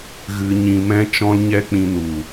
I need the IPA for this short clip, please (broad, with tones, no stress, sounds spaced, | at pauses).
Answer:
ɣ ɨ˧ ɲ ĩ˧ m ɛ̃˦ t͡ʃ ɔ̃˦ l ɲ ɛ˦ k͡p ĩ˧ n u˨